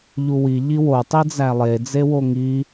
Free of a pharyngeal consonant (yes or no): yes